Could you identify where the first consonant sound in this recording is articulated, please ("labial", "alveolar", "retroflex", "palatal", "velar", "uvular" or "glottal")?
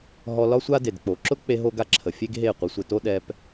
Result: glottal